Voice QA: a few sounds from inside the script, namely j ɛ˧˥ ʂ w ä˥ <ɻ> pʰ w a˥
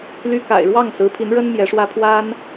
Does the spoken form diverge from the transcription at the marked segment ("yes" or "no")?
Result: yes